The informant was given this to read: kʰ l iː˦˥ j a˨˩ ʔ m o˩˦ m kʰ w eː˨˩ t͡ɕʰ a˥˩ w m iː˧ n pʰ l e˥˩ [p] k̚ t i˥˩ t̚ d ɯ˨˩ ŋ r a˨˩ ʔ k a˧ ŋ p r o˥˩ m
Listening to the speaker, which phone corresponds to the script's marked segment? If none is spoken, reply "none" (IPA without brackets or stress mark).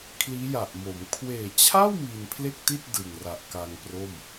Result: none